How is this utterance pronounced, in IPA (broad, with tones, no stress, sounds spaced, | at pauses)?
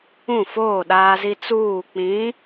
ũ˦˨ f oː˦˨ ɗ aː˦ z i˦ t͡s uː˦˨ k͡p ĩ˨˦